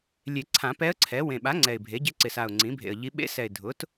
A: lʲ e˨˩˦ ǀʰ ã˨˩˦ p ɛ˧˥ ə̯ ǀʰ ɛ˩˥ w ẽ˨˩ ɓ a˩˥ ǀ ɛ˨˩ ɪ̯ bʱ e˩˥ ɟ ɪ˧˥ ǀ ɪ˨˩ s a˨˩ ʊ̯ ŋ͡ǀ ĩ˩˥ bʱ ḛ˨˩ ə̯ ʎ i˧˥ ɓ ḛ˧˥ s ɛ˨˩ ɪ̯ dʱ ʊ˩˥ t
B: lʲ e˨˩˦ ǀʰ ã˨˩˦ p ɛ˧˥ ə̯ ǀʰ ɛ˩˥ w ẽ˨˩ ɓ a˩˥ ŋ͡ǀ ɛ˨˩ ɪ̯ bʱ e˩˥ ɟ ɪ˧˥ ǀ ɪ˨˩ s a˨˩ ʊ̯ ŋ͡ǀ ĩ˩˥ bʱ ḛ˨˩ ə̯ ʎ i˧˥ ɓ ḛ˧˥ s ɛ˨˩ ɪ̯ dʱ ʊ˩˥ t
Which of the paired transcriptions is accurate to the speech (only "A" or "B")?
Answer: B